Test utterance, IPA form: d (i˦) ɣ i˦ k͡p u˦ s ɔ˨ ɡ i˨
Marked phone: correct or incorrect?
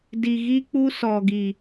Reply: incorrect